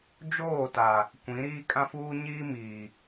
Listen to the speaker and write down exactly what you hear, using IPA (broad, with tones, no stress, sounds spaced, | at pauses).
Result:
d͡ʒ oː˦˨ t a˨ | kʷ ĩ˨˦ ɾ iː˦ kʼ ã˦ f uː˦ ɲ iː˦ m iː˨